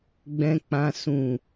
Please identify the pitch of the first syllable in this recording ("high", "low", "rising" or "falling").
high